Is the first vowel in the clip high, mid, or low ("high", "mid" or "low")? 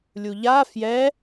high